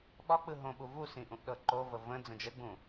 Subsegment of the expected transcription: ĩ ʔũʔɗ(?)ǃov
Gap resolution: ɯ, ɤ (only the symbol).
ɤ